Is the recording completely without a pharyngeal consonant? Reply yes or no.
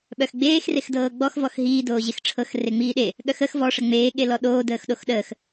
yes